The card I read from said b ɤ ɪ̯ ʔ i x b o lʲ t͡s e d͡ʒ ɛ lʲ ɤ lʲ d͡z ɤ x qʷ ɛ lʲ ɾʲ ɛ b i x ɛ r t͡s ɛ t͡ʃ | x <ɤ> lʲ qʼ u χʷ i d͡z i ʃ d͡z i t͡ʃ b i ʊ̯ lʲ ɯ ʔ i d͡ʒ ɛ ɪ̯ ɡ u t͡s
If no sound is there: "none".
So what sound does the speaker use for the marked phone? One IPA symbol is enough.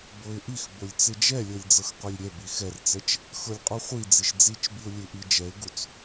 ɤ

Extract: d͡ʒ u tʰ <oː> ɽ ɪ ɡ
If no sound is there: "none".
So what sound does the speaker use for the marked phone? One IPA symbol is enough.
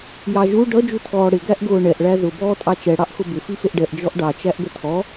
ɔː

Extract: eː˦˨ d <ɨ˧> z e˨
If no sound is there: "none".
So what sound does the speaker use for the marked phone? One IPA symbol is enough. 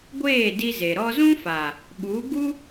i˧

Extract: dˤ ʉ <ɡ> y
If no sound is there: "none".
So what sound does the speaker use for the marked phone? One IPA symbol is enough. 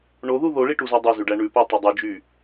d͡ʒ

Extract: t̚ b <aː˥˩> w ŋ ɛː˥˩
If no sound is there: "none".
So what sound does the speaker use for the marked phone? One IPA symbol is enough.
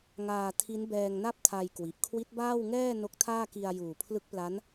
aː˥˩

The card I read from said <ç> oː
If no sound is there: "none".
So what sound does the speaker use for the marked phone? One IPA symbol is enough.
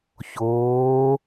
ç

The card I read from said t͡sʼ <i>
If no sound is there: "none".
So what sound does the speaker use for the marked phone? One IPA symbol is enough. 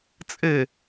e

